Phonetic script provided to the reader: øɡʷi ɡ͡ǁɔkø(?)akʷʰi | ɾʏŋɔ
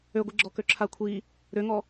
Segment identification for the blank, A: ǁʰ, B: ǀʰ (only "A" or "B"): A